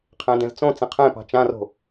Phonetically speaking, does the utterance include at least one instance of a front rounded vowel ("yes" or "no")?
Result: no